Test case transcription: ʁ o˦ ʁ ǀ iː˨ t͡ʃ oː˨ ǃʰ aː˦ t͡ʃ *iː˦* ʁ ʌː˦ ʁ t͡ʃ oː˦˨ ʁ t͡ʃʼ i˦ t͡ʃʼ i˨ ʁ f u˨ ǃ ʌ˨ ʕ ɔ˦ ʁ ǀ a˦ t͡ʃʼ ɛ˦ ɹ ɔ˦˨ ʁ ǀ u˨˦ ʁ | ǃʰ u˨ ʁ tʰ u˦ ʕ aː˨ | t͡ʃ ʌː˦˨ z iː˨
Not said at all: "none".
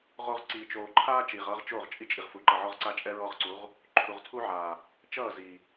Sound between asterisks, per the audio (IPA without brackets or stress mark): iː˨